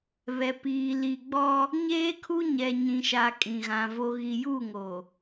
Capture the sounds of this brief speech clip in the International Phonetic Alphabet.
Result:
β ɛ˨ p iː˨ l i˨ ɡ͡b ɔ˦ | ɲ eː˦ kʰ u˦ ɲ ɛ˨ ɲ ĩ˨ ʃ a˨ kʼ ĩ˨ ɣ ã˨ v o˨ ɣ i˨ j u˦˨ ŋ o˨

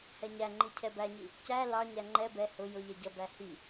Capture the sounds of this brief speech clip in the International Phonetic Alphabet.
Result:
h ɛ ɲ æ ŋ͡ǃ i cʰ ɛ b æ ɲ i | c æ l ɑ ɲ æ ŋ͡ǃ ɛ b ɛ h ʊ j ʊ ʎ ɛ ɟ ʌ b æ h i

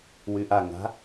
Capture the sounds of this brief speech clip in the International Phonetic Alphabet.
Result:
w y ʔ a ŋ a̤

